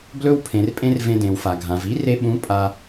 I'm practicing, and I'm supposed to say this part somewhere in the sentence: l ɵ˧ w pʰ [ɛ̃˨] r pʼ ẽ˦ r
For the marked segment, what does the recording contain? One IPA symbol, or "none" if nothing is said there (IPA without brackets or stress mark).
ẽ˨